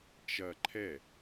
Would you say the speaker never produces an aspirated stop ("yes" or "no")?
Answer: no